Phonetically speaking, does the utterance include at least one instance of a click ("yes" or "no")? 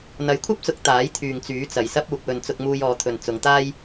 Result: no